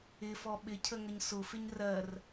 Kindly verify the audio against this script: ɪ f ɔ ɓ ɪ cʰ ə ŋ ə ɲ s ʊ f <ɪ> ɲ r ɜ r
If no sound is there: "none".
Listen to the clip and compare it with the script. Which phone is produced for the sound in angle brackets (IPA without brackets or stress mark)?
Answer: ɪ